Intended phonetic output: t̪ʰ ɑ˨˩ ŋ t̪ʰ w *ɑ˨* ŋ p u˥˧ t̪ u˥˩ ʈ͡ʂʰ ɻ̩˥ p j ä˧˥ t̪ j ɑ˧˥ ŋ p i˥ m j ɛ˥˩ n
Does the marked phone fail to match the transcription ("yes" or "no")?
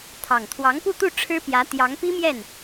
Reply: yes